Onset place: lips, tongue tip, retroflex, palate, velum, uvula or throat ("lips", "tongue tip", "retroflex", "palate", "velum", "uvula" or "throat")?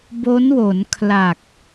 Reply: lips